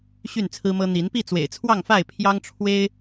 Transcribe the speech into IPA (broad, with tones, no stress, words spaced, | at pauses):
ɕy˥˨nt͡sʰɹ̩˦mɤ˦ n̪i˨˦npi˥˨ t͡swḛ˨˩ɪ̯t͡sʰwɑ˥˨ŋfa˥˨ɪ̯ pʰjɑ˦ŋʈ͡ʂʰwe˦ɪ̯